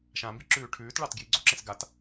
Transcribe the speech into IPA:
ʃ ã m b i ǁ ʉː ʈʰ ʉː t ɭ ɑ t ɡ j i ɡ͡ǀ o ǁ ẽ s ɡ a t

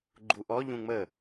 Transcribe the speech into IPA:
ɡ͡ǃ u ʔ ɔ ʎ ũ ŋ͡m ə

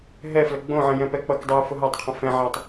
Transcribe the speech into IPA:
ɦ ɛ f l ə ɡ͡b õ ʕ ə̃ j ɛ̃ p ɛ k͡p ʌ k dˤ u j f ʊ ɦ a tˤ qʰ ə̃ f ɛ̃ ʕ a tˤ

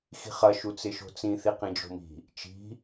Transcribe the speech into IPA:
x i̤ χ ɐ ʃ u t͡s ɪ ʃ o̤ t͡s ĩ θ i q ĩ d͡ʒ o̤ m i̤ | t͡ʃ i̤

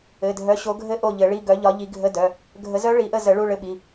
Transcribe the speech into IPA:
ɘ˩˧˩ dʱ œ˨˦ ɕ o˨˦ ɡʱ ɘ˦˥ ʔ o˦˨ ʎ ɘ˨˩˦ ɭ i˧˥˧ ɡ œ˨˦ ʎ ɒ˨˦ ʎ i˨˦ ɡʱ ə˧˥˧ d œ˩˧˩ | ɡʱ ə˨˦ z œ˦˥ ɭ i˨˩˦ ʔ ə˦˨ z ə˨˩˦ ɭ u˧˥˧ ɭ ɘ˦˥ ɓ i˩˧˩

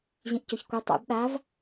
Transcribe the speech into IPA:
ʑ ĩ ʔ c ɵ ç kʷ ɐ tˤ ṵ b ɗ a v

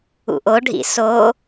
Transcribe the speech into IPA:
ṵ ʔ o ɖʱ ḭ s o

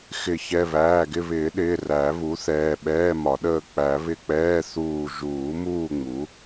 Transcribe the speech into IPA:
x ɪ˨˩˦ ç ɛ˩˧˩ β æː˩˧˩ ɡ ɪ˦˨ β ɪː˨˩˦ ɗ ɪː˩˧˩ r æ˨˩˦ β u˩˥ θ ɛː˩˧˩ ɓ ɛː˧˥˧ m ɒ˨˩˦ ɗ əː˦˨ k͡p æ˨˩˦ β ɪ˦˨ k͡p ɛː˧˥˧ θ uː˦˨ ʒ uː˨˩˦ m uː˦˨ ŋ͡m u˩˥

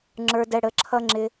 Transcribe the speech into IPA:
ŋ͡ǁ ə˞˧ d ɛ˧ ɽ ə˨˦ ǁʰ ʌ˦ ŋ͡ǁ ɪ˦

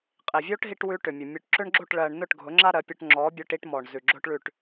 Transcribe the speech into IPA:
qʼ i˨ vʲ o˦ ʈ ɦ i˦ ʈ w ʉ˦ ʈ ʏ˨ mʲ ʊ˨ mʲ ʉ˨ ʈ ǁ ʏ˦ ɳ ɡ͡ǁ o˦˨ ʈ ɭ ɜ˨ ɳ n ʊ˦˨ ʈ ɡʱ ʊ˨˦ ŋ͡ǁ a˦ ɾ ɜ˨˦ pʲ ʊ˦ ʈ ŋ͡ǁ ɔ˨˦ bʲ ʊ˦ ʈ i˦ ʈ m ɔ˨ ɳ z ʉ˨ ɡ͡ǁ ʊ˦ ʈ ɭ ʉ˦˨ ʈ

